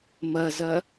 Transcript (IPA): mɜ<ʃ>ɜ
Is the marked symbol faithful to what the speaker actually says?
no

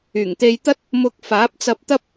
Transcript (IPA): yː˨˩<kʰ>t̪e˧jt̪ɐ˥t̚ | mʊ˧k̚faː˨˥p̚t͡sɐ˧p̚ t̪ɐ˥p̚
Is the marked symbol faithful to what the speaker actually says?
no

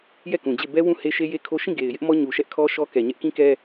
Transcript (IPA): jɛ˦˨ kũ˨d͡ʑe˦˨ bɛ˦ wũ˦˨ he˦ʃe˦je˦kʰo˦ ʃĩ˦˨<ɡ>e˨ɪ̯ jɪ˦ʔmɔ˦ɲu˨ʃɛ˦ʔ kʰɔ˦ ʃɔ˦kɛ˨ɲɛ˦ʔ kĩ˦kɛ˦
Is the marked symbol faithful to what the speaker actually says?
yes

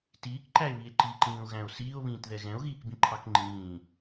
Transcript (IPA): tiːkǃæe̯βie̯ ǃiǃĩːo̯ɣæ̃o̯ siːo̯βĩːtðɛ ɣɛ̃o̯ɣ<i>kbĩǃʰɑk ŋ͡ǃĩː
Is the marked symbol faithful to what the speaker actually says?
no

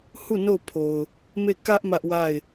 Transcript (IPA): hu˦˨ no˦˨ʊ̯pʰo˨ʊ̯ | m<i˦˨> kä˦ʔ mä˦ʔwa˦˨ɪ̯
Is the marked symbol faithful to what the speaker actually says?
no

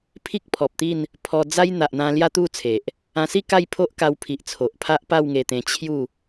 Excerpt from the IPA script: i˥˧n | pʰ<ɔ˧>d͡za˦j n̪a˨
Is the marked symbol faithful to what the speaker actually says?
yes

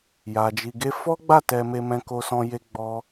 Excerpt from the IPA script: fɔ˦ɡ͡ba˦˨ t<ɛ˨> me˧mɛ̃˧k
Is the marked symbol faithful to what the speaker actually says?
no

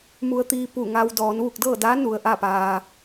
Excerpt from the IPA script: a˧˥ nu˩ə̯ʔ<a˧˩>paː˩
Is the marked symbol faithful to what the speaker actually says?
no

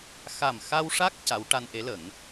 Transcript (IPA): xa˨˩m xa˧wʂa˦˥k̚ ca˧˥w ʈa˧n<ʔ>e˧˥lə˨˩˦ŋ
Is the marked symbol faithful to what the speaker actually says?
yes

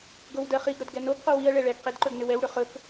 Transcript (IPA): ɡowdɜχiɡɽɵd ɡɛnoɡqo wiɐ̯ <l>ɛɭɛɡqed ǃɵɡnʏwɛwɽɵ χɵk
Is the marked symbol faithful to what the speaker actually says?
no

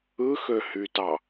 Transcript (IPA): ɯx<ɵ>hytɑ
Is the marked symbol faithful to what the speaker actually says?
no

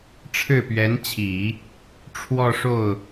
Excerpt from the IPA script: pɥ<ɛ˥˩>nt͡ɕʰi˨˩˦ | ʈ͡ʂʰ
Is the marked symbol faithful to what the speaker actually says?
no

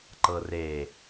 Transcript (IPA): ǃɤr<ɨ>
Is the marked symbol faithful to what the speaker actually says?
no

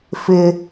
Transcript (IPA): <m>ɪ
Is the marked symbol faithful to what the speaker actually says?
no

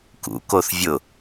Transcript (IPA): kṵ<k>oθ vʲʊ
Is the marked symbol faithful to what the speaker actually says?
yes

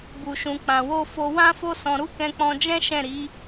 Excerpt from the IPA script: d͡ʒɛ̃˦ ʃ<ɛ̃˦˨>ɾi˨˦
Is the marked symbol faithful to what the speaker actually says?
yes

